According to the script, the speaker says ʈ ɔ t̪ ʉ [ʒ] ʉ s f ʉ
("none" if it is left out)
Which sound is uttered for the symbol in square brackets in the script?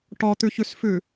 ç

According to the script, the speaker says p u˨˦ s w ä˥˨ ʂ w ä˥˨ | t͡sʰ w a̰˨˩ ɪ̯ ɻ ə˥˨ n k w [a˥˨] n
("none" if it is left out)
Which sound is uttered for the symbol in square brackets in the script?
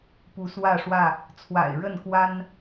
a˦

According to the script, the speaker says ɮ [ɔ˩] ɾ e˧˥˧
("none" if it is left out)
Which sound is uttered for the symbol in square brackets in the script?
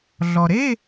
ɔ˩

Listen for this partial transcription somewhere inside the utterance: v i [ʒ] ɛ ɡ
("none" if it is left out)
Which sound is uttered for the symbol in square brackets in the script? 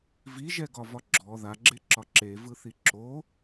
ʒ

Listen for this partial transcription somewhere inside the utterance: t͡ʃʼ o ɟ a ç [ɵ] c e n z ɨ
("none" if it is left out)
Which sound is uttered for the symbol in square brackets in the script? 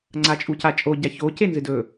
o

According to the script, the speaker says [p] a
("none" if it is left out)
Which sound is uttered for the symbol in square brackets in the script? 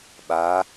ɓ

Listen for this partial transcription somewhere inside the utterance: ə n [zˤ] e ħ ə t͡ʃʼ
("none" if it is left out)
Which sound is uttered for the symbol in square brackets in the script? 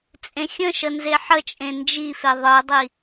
z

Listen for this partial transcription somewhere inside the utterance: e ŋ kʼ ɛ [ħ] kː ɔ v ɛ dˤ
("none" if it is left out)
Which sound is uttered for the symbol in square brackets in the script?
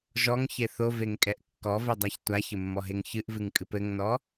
ʔ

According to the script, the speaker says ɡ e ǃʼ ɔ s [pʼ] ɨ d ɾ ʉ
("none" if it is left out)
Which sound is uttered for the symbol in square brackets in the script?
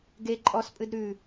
pʼ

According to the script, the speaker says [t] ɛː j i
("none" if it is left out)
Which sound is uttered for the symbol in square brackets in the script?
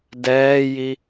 d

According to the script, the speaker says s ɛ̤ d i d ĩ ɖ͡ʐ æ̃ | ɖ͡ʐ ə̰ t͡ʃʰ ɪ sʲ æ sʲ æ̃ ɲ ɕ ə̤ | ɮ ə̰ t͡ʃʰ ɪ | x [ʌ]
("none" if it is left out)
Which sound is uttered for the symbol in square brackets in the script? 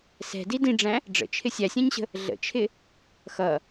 ʌ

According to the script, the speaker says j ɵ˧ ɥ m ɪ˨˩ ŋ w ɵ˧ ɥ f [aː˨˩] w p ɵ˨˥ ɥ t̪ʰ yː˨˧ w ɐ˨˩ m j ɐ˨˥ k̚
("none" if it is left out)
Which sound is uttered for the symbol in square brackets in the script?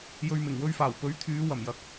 aː˨˩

